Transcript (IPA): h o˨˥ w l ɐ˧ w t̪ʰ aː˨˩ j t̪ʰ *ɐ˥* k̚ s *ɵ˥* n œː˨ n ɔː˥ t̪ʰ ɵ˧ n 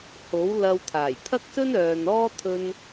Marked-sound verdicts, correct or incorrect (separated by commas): correct, correct